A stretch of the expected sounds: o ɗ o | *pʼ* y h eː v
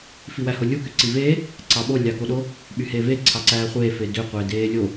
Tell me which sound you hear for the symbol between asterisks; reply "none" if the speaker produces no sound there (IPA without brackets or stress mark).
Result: ɓ